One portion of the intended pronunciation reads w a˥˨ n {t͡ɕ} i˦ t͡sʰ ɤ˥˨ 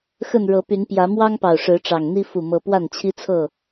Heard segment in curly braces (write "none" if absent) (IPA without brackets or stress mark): t͡ɕʰ